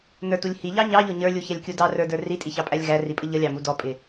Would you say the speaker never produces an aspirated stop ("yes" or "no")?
yes